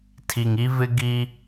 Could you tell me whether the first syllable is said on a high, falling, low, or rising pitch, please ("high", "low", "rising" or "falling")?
low